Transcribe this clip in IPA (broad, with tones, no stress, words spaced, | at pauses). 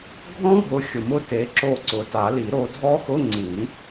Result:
ɡʱɔ̃˦˥ɡʱʊ˨˦ xʲʊ˨mʊ˦˥ te˨˦ǁo˦˨ ǀʊ˨˦ ta˨˩˦li˨˩˦ɾo˨˦dʱɔ˦˥ xʊ˧˥˧ŋ͡ǀĩ˨˩˦